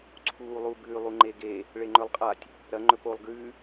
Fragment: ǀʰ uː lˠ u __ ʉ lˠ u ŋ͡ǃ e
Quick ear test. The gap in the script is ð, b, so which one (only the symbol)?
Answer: b